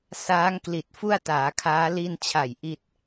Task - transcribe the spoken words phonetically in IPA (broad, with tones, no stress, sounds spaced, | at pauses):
s aː˦˥ ŋ k l i˨˩ t̚ f u˥˩ a̯ t aː˩˦ kʰ aː˦˥ l i˧ n t͡ɕʰ a˨˩ j ʔ i˥˩ t̚